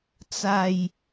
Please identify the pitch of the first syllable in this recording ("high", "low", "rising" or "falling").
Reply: low